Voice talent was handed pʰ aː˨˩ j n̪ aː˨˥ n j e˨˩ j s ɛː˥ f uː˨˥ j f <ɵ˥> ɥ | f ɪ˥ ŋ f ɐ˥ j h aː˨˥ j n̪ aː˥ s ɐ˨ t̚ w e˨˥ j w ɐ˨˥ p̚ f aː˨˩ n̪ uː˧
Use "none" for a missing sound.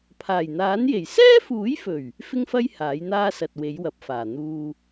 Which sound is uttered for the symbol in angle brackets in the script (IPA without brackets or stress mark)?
ɵ˨˩